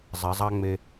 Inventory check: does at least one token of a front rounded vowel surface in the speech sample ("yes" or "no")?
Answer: no